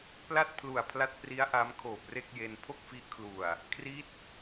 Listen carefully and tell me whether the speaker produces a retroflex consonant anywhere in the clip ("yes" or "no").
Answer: no